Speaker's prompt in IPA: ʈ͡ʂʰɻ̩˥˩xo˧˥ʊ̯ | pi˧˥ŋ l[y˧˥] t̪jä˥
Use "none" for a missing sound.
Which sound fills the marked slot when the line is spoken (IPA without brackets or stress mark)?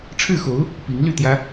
y˥˩